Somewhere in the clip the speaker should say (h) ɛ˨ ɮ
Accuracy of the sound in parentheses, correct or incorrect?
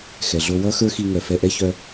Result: incorrect: x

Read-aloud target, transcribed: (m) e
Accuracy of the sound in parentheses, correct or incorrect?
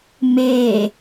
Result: correct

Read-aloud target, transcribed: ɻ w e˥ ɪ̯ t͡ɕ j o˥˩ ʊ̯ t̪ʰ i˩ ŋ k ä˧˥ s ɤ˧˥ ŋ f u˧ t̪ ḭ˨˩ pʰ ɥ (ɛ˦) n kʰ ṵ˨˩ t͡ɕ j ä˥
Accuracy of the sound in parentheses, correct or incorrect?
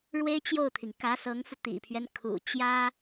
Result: correct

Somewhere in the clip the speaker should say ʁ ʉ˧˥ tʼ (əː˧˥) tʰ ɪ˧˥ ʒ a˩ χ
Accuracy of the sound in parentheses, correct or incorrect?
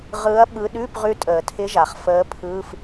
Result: incorrect: əː˩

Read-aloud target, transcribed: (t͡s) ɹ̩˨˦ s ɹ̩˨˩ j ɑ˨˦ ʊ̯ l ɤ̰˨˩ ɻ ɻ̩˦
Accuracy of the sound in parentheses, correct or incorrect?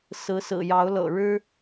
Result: incorrect: s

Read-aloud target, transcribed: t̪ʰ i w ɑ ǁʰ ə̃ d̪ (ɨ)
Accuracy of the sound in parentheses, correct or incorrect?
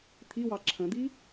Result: incorrect: i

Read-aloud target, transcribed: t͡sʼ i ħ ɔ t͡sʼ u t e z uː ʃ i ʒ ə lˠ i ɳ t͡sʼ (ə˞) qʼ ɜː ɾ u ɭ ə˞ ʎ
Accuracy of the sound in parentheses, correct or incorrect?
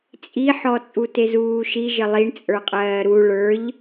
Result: correct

